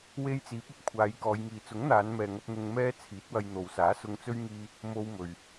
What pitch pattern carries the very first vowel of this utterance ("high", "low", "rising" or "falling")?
high